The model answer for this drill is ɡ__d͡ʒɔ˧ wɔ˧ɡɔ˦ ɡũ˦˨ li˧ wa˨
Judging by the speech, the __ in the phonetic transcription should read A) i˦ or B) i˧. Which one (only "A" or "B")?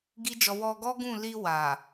A